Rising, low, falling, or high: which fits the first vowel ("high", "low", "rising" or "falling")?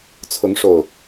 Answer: rising